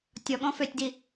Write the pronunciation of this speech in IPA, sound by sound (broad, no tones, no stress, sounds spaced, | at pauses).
tʲ ɔ ɠ ɔ̃ f ø tʲ d i